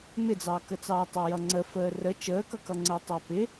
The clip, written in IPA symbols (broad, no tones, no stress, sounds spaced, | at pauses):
m ɪ d͡z ɑː k ə t͡s ɑː tˤ ʌ j ʌ ŋ͡ǀ ə f əː r ə t͡ʃ əː k ʌ k ʌ ŋ͡ǀ əː tˤ æ p ɪ